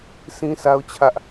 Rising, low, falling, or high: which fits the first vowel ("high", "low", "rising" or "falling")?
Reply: high